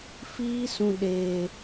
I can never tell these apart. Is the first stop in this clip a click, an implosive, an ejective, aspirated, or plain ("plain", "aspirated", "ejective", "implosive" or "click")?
implosive